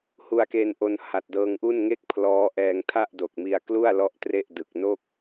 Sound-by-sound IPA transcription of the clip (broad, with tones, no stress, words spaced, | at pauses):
hu˧a̯keː˧nʔo˧n ha˨˩t̚dɤː˧ŋʔu˥˩n ŋe˥˩k̚pʰlɔː˦˥ʔɛː˧ŋ tʰa˥˩ʔdo˨˩k̚mi˧a̯klu˥˩a̯ lɔ˥˩ʔtre˥˩ʔdɯ˨˩k̚ no˥˩k̚